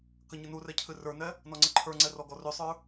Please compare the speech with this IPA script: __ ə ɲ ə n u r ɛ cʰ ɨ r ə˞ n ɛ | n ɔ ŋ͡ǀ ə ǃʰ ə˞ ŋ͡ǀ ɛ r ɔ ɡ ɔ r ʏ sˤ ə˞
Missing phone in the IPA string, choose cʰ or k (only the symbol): k